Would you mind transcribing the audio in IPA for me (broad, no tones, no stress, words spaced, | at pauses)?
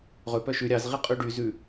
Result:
ʁɵ pœʃʉ ɾʲɑz ʁiqʼʉɖy zʉ